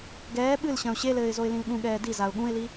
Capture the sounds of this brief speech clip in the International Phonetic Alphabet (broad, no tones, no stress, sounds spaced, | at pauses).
ɡ ɛː ɓ ɨ l ɕ ɐ̃ ʊ̯ ɕ e l ɘː ɪ̯ z o ɪ̯ l ĩ l ɠ ũ ɠ ɛː d i z a ʊ̯ ɠ ũ ɪ̯ l i